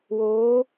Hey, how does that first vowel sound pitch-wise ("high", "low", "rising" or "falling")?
rising